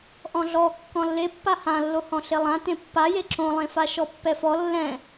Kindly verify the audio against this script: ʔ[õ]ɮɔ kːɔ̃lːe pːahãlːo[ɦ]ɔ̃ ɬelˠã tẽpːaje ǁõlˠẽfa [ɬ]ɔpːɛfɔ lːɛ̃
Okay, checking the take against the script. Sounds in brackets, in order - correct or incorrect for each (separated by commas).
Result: incorrect, incorrect, incorrect